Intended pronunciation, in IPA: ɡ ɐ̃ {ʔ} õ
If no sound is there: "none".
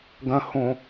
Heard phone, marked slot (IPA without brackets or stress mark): h